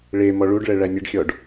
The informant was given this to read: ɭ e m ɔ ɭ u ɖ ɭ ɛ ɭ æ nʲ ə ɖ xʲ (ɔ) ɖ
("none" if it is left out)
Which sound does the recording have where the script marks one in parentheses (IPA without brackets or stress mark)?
ɔ